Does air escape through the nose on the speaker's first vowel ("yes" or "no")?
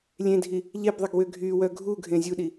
yes